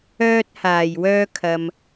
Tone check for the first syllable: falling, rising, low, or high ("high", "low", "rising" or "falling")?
high